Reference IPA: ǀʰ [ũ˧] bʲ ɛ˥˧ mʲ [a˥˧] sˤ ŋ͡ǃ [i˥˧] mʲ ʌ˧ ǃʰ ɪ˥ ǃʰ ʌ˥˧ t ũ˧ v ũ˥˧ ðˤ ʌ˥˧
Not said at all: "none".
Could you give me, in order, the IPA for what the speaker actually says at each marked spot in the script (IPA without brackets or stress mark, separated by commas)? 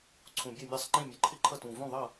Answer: ũ˧, ɑ˥˧, ĩ˥˧